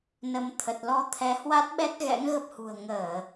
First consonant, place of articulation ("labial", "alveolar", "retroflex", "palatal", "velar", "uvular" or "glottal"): alveolar